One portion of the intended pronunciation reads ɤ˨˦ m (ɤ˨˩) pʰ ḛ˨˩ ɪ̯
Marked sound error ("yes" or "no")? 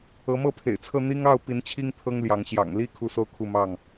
yes